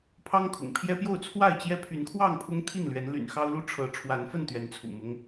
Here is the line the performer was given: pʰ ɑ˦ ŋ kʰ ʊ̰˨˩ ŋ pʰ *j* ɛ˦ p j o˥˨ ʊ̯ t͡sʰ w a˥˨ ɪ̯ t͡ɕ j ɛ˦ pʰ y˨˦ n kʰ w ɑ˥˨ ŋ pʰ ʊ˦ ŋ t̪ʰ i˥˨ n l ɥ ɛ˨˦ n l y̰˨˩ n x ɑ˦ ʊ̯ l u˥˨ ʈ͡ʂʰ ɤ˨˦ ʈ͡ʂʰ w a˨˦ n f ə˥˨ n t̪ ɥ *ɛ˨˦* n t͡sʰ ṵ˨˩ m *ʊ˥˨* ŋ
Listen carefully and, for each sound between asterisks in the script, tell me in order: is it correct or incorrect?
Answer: correct, correct, incorrect: ʊ˦

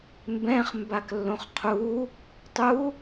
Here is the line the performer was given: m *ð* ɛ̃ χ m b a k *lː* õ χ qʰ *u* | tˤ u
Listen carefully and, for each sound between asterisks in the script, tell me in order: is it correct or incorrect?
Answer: incorrect: b, correct, correct

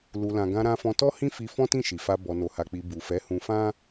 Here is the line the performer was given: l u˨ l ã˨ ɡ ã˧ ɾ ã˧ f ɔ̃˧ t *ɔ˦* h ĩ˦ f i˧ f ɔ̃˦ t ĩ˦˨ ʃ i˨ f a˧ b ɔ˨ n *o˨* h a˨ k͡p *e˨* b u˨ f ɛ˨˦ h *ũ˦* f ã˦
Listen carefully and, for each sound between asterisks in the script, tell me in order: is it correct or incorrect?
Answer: correct, correct, incorrect: i˨, incorrect: ũ˧

